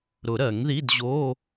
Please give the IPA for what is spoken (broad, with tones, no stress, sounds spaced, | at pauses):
ɾ ʊ˨˩˦ ɾ ɜ˨˩˦ ŋ ð i˧˥˧ d ʑ o˧˥˧